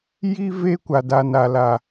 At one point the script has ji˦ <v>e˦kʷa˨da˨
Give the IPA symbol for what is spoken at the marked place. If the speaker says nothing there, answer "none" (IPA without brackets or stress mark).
v